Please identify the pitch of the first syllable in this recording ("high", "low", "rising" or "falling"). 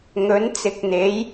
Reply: rising